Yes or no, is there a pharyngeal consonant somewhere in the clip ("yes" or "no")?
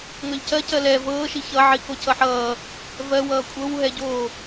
yes